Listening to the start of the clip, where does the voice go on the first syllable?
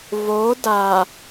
rising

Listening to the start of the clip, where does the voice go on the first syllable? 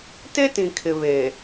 high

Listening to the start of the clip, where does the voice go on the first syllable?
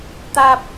high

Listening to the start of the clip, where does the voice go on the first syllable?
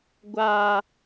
high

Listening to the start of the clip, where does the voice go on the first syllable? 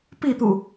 falling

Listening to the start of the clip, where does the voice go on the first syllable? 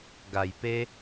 low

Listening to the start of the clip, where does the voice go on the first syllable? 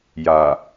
low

